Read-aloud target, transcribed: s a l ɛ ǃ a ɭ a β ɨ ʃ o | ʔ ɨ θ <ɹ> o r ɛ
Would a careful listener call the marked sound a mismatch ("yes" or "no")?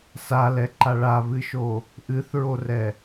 no